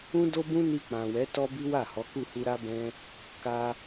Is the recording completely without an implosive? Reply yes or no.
yes